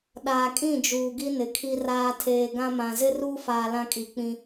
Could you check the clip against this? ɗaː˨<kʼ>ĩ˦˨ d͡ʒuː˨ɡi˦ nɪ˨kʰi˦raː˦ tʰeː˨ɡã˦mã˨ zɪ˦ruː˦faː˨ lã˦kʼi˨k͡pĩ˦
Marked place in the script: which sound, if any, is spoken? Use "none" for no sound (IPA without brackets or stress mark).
kʼ